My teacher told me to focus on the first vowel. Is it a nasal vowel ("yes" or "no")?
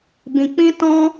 yes